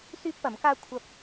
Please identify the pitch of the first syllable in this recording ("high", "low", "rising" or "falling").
high